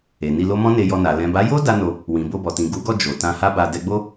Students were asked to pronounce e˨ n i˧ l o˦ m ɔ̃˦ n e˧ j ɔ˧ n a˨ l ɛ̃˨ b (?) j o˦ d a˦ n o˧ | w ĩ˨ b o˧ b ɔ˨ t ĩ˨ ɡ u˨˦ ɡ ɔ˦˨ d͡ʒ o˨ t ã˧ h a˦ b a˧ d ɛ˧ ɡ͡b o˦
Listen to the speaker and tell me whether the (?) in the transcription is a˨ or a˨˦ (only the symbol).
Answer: a˨˦